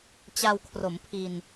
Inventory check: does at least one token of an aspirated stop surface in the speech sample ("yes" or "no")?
yes